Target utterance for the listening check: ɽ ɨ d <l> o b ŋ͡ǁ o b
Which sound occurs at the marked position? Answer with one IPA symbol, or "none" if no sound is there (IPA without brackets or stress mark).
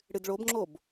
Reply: ɭ